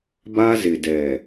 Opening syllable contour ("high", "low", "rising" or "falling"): high